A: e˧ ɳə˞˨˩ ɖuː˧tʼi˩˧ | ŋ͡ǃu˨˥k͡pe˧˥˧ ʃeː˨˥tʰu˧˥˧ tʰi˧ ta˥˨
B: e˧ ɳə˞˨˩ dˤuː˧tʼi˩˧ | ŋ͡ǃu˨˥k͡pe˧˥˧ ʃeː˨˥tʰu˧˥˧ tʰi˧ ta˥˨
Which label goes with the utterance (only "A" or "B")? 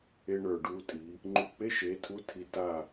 A